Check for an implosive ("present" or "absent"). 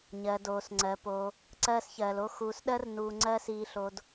present